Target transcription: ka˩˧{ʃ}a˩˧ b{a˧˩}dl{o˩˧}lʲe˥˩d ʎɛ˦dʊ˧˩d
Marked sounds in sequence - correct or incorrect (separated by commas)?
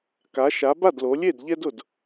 correct, incorrect, correct